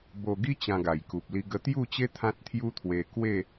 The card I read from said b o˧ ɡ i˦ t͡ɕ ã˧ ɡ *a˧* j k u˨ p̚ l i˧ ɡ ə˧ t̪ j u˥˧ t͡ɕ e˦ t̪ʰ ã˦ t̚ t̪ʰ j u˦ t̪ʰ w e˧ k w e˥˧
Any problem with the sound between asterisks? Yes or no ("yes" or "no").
yes